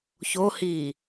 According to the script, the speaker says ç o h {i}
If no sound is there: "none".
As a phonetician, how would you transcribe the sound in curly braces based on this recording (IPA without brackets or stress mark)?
i